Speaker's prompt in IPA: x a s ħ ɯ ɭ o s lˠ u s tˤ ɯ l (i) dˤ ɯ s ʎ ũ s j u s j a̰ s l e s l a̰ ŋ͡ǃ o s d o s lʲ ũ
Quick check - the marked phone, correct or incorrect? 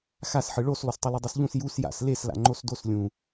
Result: correct